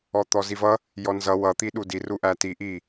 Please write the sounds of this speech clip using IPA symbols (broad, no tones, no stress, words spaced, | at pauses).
ɔt̪ɔzivʌ | jɔnzʌ wʌ t̪iɗudi ruʔæti ʔi